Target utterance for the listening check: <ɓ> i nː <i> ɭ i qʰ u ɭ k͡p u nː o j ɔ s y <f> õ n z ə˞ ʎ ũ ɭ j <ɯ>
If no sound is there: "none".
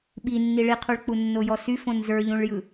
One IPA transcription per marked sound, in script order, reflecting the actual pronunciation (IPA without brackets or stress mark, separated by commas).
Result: ɓ, i, f, ɯ